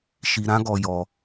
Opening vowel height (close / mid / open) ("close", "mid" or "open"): close